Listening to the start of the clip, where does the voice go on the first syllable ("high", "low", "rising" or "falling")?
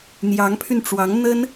rising